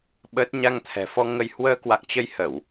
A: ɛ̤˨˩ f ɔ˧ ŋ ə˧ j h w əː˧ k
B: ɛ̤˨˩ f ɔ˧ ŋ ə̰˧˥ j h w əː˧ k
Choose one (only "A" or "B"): A